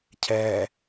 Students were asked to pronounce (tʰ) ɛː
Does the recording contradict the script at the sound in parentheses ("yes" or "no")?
yes